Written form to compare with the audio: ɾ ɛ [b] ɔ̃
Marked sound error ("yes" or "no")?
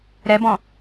no